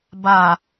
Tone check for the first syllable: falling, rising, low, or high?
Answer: low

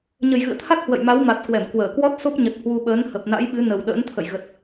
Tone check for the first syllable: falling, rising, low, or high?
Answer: low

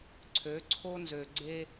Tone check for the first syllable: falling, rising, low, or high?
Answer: rising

